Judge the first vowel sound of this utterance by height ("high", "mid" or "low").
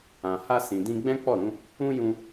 low